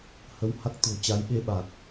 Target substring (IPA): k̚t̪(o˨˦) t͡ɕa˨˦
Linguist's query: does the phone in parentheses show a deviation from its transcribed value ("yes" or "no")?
yes